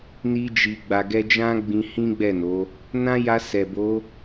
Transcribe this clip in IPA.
n i˧ d͡ʒ i˨ ɡ͡b a˨ ɡ ɛ˧ d͡ʒ ã˦ ɡ͡b ĩ˧ h ĩ˦ ɡ͡b ɛ˦˨ n o˨˦ | n ã˦ j a˧ s ɛ˨ b o˨˦

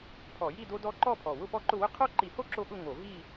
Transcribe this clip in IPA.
pʰ ɔ˧˩˧ j i˥˧ d o˥ d ɔ˥ ǃ ɔ˥˧ pʰ ɔ˨˩ w ʊ˥˧ p ɔ˥˧ ǃ ʊ˥˧ w ʊ˥ qʰ o˥˧ ǃ i˧˩˧ h o˥˧ ǁ o˥˧ ɠ ʊ˥˧ ŋ o˧˩˧ v i˥˧

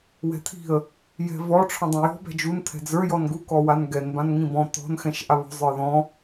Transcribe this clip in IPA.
w ɛ̤ t̪ʰ i̤ ə̯ | j ɛ̤ v ɔ ʈ͡ʂʰ ɔ̃ dˤ ã j ɔ̤ b ɛ̤ d͡ʒ u n t̪ʰ ɛ̤ d͡z ə˞ j ɔ n ɡ u k ɔ w a n ɡ ɛ n b ã n ŋ ĩ b ɔ̃ t̪ ɔ̤ n x ɛ̃ ʃ ʔ a β ɔ̤ zˤ ə˞ ð ɔ̃

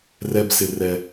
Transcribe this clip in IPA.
r ɛ˧ b s ɪ˨ r ɛ˨

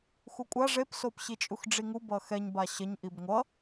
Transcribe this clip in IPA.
x u kʷʼ a ʐ e p s o p ɕ i t͡ʃʼ u x ɖ͡ʐ i ŋ u b ʌ x ɛ ɲ b a ɕ ʌ ɲ ʔ i b ŋʷ ʌ

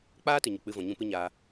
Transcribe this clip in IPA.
k͡p aː˦ t ɨ˨ ɲ ə˨ k͡p ɨ˧ v ɔ̃˨ ɲ ũ˧ p ɨ˦ ɲ aː˧

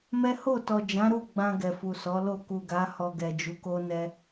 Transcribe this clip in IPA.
m ɛ˦ h o˦˨ t ɔ˨ d͡ʒ ã˨˦ ɾ u˦˨ ɡ͡b ã˧ ɡ ɛ˨ f u˨ s ɔ˨˦ l o˦˨ k u˨ ɡ a˨˦ h ɔ˧ ɡ ɛ˨ d͡ʒ u˨˦ k o˦ n ɛ˦

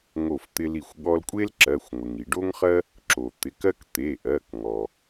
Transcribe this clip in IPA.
ŋ o˧˩ f t̪ ɪ˧ l i˧˩ xʷ ɠ ɔ˧ l kʷʼ e˥ l ǁ ɜ˩˧˩ xʷ ŋʷ ɪ˩ ŋ i˩ ɖ o˥ ŋ χ ɜ˥ | ǁ o˩ t̪ ɪ˩˧˩ k ɜ˥ k t̪ e˩˧˩ ʔ ɜ˩˧˩ k ŋ ɔ˩

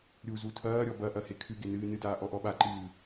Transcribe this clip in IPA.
ɾʲ u z u tʰ ɐː ɾʲ ɔ b ɐ ʔ ɐ h e kʰ ɨ ɡ e n ɨː n ɨ d aː ʔ ɔ ʔ ɔ ɓ a ǃ ɨː

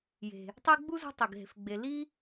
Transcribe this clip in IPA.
j e̤˩ | tˤ i˦ ɡ͡b u˥ z o̤˦ tˤ i˩ ɡ ɦ e̤˨ f ɡ͡b e˨ l i˦

